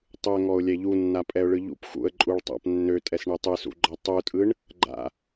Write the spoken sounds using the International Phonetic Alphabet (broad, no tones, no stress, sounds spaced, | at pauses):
tˤ ɯ ə̯ ŋ ɔ ʊ̯ lʲ ɛ ʎ u nː a pʼ ɛ ʊ̯ ɭ ɯ ʎ ṵ p x ṵ ə̯ ǃʼ u ɭ tˤ a̰ p nː ø tʼ ɛ s ɳ e tˤ ɯ s ṵ ɡ͡ǃ ɔ tˤ u tʼ ɯ ɳ | ɡ͡ǃ a̰